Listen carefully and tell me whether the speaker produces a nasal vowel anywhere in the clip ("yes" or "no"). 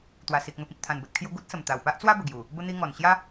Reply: yes